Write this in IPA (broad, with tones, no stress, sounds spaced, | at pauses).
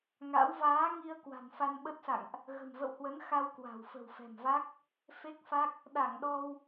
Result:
ŋ a̰˧˥ w v aː˨˦ ŋ i˧ ə̯ k w a̤˨˩ n f a˧ n ɓ ə˦˥ t̚ s a̰˧˨ ŋ ʔ | ɣ ə̤˨˩ m v ə̰˧˨ w h w ə˨˦ n x a˧ w k w a̤˨˩ w f ə̤˨˩ w f ɛ̤˨˩ m v a˦˥ k̚ | f e˦˥ k̚ f a˦˥ k̚ | ɗ a˧˩ ŋ ɗ ɔ˧ w